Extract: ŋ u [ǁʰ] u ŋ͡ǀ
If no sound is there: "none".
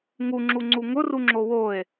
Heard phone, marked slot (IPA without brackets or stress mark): ŋ͡ǁ